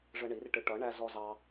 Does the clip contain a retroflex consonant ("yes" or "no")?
yes